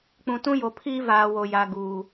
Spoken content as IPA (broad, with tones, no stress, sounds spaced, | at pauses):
k͡p ũ˨ t ũ˦ j o˨ pʰ iː˦ v aː˨ w o˨ j a˨ ɡ uː˨